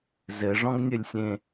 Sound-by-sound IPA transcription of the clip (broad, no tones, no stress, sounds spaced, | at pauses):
z ɘ ʐ ɔ̃ ɡ nʲ ɘ lʲ sʲ ẽ